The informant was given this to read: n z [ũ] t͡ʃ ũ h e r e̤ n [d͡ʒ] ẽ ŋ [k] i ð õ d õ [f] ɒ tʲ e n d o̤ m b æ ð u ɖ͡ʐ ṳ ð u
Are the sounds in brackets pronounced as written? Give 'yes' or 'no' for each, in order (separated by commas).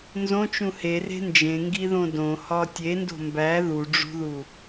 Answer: no, yes, no, no